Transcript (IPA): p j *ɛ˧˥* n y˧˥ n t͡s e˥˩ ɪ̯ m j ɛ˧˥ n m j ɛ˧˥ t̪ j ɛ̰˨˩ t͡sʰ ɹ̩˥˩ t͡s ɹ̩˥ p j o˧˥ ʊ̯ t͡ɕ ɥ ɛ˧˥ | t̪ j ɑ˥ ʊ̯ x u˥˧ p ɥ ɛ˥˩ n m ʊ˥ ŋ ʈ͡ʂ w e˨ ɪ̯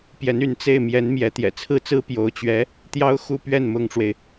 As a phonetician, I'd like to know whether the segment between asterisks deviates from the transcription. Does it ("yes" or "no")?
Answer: no